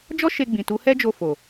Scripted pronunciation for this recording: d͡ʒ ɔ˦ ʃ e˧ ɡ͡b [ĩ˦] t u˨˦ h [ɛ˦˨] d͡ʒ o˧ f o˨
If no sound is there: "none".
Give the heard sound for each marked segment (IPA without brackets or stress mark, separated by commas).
ĩ˨, ɛ˦